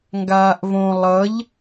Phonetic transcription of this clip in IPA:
ŋ ɡ aː ʔ v õ lˠ ʌ ʎ

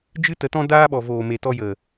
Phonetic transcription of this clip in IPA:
d͡ʒ ɨ˦ t ə˧ t ɔ̃˦ d aː˦ ɓ ɔ˨ v oː˨ m e˨ t ɔ˧ j ə˨

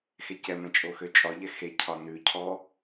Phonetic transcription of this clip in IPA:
x e c ɛ m ɛ̃ t͡ʃʼ o x ø t͡ʃʼ ɒ ʎ ɛ x e cʰ ɒ n ʉ cʰ ɔ

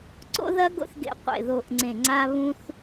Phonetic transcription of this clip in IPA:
ǀ o̰˥ ð ɐ˥ ɡ o̰˥ θ ɡ ḛ˦˨ qʷ ḛ˦˨ ð o˦˨ ʔ ŋ͡ǀ ẽ˦˨ ŋ͡ǀ a˥ β ũ˥ θ

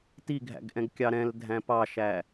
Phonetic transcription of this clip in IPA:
t i ɡʱ æ̰ ɡ ʔ ɛ̃ ɡ kʲ ɑ ɾ ɛ̃ l dʱ æ̃ p ɑ ʃ æ

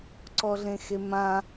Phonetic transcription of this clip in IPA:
ǀ ɔ ɮ ẽ x e m ã

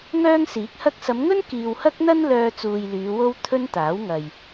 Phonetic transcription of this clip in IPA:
ŋ œː˥ ŋ s iː˨˥ k̚ h ɐ˥ k̚ s ɐ˨˧ m ŋ ɵ˥ n k iː˨ w h ɐ˥ k̚ n̪ ɐ˥ n l œː˧ t͡s uː˨ j l yː˨˧ w o˥ w t̪ʰ ɵ˥ n t̪ aː˨˥ w ŋ ɐ˨ j

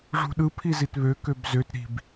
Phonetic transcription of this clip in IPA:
ʐ ṳ ɗ ɯ pʰ i z i t β ø k ø b z ø t ɾ i̤ b

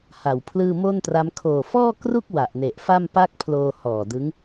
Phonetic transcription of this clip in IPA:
h a˨˩ w pʰ l ɯː˥˩ m o˥˩ n t r a˦˥ m kʰ oː˨˩ f ɔː˥˩ k r u˥˩ k̚ w a˨˩ ʔ n e˨˩ ʔ f a˥˩ m p a˥˩ k̚ pʰ l oː˧ h ɔː˨˩ d ɯ˦˥ ŋ

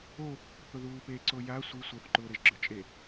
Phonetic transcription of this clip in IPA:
o | θ ʊ ð uː p e ǀ o j a sʷ i sʷ ʌ θ ǃ ʊː ɾ e ʒ ɡ͡ǁ ø t͡ʃʼ e

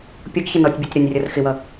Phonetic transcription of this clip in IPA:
pʲ ʌ ɡ ç ə n ɔ tʲ bʲ ɔ tʲ ɾ ɔ nʲ rʲ ʌ r x ɪ w ʌ

